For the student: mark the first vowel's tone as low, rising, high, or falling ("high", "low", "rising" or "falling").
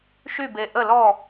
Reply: falling